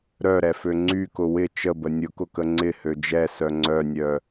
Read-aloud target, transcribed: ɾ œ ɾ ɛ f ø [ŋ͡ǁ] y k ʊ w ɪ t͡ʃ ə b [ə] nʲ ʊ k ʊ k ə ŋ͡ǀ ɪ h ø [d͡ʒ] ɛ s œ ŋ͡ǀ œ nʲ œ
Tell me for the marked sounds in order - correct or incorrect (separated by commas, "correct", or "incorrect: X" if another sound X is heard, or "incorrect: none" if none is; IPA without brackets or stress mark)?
incorrect: ŋ͡ǀ, correct, correct